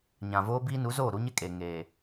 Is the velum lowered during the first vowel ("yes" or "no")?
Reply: yes